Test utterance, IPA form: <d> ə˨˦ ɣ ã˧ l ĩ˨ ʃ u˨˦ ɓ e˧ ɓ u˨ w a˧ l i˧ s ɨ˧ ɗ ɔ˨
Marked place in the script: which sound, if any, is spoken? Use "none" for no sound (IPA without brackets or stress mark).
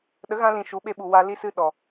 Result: ɗ